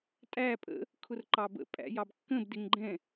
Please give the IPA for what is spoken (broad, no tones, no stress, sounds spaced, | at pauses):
tʼ æ pʼ ə̰ | kʰ ʊ r ǃ ɑ b ə̰ pʼ æ̰ j ɑ b kː ə̃ b d ɪ ŋ ɡ͡ǃ ɛ̃